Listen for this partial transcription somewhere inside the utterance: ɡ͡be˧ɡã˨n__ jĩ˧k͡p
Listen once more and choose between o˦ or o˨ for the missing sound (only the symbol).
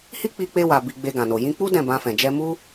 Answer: o˨